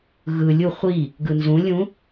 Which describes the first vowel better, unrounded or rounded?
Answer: unrounded